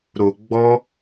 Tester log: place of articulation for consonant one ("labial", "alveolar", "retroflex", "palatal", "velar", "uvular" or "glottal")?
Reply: alveolar